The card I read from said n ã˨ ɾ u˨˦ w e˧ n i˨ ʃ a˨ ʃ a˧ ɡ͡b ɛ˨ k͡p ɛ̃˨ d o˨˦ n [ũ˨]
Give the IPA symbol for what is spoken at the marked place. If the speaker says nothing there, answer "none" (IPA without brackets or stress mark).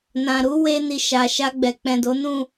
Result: ũ˦˨